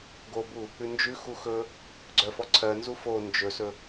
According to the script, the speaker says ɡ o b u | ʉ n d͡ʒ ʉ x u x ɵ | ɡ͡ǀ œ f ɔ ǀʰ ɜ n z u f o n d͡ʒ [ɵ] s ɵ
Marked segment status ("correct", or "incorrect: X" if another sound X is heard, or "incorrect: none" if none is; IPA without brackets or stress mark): correct